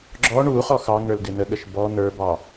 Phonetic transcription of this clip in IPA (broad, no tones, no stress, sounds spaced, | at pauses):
ɡ͡ǁ ɔ ɳ u χ ɔ x ɑ ŋ ə˞ l d ɪ n̪ ə ɠ ə ʃ b ɔ n̪ ə˞ b ɑ